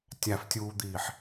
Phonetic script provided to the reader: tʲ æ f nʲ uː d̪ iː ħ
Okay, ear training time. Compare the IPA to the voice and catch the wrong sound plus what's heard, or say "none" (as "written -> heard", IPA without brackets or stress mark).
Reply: nʲ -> tʲ